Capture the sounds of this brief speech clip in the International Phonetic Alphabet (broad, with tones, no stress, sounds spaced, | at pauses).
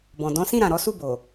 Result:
b ɔ̃˨ d ɔ̃˨˦ s ĩ˦˨ ɾ ã˨ ɾ ɔ˨˦ s u˦˨ b o˨